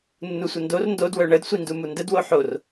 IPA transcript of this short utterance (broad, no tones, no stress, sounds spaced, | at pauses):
nː u sʷ ə n d o r n d o d w œ ɳ ə d sʷ i n d u m u n d ə d w o ħ o r